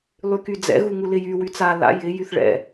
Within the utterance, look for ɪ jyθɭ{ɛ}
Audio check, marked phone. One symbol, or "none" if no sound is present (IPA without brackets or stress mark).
ɛ̰